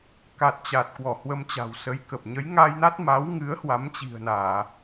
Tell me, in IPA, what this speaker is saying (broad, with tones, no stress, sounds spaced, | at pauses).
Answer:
k a˨˩ t̚ t͡ɕ a˨˩ t̚ k w ɔ˧˩ h w ə˧ m t͡ɕ a̤˨˩ w s ə˨˦ j k ə˨˩ p̚ ɲ ə˨˦ j ŋ aː˧ j n a˦˥ t̚ m a˨˦ w ŋ ɨ˨˦ ə̯ h w a˨˦ m t͡ɕ i̤˨˩ ə̯ n aː˧˩˨